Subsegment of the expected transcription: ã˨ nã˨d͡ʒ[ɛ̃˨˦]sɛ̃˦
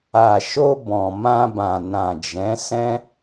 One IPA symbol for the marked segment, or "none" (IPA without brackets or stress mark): ɛ̃˨˦